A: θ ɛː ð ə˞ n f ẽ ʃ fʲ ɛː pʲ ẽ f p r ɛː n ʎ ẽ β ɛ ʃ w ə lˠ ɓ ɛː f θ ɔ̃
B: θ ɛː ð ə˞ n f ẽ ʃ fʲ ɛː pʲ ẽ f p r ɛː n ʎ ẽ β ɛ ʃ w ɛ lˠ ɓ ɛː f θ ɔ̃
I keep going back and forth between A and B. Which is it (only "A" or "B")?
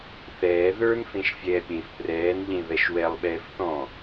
B